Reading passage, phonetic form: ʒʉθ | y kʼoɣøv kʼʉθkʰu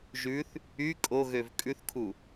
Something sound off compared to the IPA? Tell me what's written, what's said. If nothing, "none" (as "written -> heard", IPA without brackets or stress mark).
none